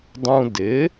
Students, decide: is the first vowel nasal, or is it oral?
nasal